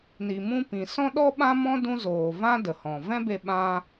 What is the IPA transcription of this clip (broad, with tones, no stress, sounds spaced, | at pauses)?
n i˨ m ũ˧ p ĩ˨ s ɔ̃˦ ɗ ɔ˦ ɓ ã˦ m ɔ̃˦ d ũ˦ z oː˨ v ã˦ d ə˨ h ɔ̃˨ v ɛ̃˦ b e˧ ɓ ã˧